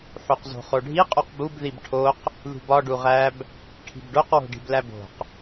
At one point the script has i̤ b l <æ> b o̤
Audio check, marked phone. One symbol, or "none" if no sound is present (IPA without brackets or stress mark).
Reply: æ